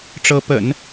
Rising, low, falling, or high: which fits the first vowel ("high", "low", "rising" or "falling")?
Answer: rising